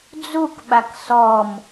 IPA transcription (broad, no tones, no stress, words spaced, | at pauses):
d͡zukɓak sɔm